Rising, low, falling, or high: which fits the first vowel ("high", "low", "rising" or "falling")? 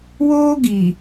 high